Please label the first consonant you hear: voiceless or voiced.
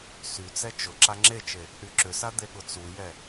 voiceless